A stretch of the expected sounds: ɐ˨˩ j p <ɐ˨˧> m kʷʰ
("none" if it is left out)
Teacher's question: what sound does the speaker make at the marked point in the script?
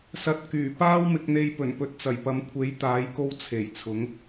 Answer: ɐ˨˧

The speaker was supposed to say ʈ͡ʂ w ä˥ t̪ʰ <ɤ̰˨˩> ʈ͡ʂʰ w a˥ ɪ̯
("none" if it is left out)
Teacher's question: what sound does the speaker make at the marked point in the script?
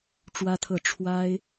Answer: ɤ˥˩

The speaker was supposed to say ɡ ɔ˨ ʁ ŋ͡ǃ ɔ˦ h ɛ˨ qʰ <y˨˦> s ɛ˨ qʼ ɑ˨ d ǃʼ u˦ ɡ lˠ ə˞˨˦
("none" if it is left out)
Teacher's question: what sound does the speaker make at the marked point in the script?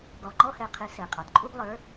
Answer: ɪ˨˦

